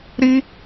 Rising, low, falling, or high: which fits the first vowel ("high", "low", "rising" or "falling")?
high